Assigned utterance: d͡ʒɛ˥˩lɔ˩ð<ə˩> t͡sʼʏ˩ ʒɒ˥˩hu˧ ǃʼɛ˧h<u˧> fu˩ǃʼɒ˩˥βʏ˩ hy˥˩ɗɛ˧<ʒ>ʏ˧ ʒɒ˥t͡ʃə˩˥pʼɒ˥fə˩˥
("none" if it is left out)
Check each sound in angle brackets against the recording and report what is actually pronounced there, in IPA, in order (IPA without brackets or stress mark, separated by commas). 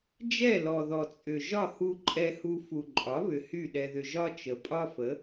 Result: ɔ˩, u˧, ð